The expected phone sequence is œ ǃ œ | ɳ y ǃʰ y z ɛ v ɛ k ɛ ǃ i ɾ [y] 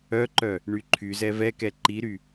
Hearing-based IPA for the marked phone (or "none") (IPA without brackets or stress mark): y